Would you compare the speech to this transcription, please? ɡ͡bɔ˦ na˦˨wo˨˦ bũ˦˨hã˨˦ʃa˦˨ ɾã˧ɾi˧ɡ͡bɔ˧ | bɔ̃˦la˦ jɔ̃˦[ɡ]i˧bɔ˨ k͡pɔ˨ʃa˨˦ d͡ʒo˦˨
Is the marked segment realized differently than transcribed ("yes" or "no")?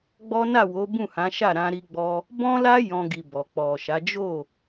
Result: no